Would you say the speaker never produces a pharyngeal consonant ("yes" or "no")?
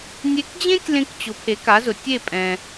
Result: yes